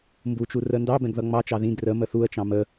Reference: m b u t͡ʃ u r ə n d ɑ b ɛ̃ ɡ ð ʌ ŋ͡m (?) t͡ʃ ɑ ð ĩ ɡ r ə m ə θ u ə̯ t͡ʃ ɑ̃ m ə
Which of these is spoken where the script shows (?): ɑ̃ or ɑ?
ɑ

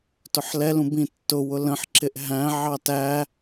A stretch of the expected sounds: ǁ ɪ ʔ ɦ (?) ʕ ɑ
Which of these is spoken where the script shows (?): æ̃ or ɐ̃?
æ̃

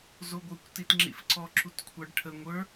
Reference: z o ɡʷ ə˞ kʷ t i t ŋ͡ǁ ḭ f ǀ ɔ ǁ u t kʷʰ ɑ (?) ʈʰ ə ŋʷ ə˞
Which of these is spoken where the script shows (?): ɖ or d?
ɖ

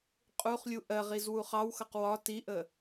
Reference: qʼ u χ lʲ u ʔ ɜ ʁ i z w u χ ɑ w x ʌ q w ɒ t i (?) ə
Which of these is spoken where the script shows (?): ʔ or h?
ʔ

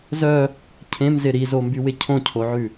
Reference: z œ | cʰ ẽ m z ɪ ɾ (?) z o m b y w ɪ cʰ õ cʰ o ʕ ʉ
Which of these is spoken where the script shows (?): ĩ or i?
i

